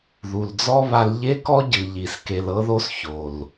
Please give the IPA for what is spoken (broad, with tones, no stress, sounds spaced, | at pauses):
ð u˨ l d͡z ɔ˦ β a˧ l ʎ e˦ k ɔ˦ ɟ ɯ˨ ʎ i˨ s k e˨ l ɤ˧ ð o˧ s ç o˨ l